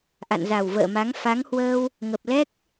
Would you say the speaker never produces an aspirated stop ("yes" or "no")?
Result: yes